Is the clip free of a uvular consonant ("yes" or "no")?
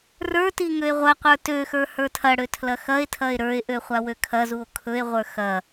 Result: no